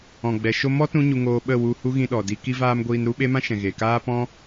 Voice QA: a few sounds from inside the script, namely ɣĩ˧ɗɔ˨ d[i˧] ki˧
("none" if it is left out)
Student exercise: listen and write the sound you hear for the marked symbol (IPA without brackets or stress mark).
i˧